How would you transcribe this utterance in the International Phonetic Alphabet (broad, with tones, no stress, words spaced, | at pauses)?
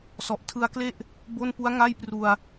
sɔ˨˩ʔtʰɯ˧a̯kle˥˩ʔ | bo˥˩n pu˦˥a̯ŋa˥˩jpru˧a̯